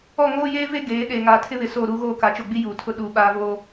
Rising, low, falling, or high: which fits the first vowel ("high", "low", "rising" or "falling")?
falling